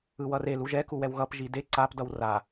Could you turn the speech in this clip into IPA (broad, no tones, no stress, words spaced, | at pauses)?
ɯwʌre luʒɛ kuwɛwɣʌp ʒide ǀap dʌwra